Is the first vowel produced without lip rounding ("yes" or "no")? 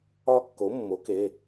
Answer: no